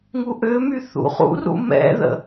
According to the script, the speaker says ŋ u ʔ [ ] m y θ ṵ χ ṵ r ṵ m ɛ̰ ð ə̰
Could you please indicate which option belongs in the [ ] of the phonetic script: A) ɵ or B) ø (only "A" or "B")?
B